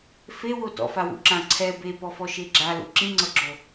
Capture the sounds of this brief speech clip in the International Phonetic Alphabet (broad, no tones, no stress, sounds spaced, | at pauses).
f e w o t ɔ̰ f a w ṵ ǁ ã ǀʰ ɛ b e p ɔ f ɔ ʃ e ɡ͡ǁ a l ṵ ǁ ĩ ŋ͡ǀ ɤ ɡ͡ǁ o